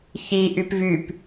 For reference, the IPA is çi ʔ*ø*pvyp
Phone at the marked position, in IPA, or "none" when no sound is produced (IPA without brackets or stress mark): y